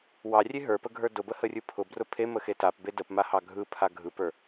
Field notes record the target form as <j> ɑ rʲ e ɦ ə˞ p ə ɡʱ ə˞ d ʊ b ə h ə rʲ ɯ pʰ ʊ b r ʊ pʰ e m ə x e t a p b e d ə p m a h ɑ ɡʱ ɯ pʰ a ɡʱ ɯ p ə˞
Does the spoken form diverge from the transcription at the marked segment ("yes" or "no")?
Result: yes